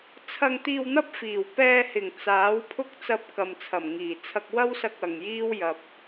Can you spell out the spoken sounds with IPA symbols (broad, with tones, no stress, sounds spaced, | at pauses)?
t͡sʰ ɐ˧ ŋ t̪ iː˧ w n̪ ɐ˥ p̚ f iː˨˩ w p ɛː˧ h ɪ˨˩ ŋ t͡s aː˨˥ w pʰ ʊ˥ k̚ t͡s ɐ˧ p̚ k ɐ˨ m t͡sʰ ɐ˨˩ m ŋ iː˨˩ t͡sʰ ɐ˧ k̚ w ɐ˥ w s ɐ˧ k̚ ɐ˨ ŋ j iː˥ w j ɐ˧ p̚